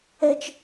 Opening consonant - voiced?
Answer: no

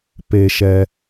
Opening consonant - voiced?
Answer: no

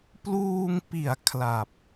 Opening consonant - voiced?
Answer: no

